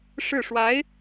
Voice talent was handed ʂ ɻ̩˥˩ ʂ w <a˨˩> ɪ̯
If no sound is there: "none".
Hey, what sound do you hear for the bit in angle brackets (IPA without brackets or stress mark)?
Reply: a˧˥